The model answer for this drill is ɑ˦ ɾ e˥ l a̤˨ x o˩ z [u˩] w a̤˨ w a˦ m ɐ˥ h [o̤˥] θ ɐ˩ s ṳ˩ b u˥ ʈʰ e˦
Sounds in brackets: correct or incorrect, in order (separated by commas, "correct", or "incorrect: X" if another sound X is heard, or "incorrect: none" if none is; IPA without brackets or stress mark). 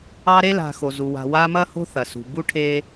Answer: correct, correct